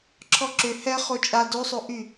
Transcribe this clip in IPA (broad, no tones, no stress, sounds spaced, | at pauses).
ǁʰ ɔ ǁ ʏ h ɛ χ o t͡ʃʼ a d o sˤ o ʔ y